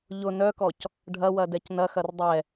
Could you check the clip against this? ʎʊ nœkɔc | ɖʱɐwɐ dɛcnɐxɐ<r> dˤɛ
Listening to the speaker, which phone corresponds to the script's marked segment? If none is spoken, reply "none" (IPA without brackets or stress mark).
r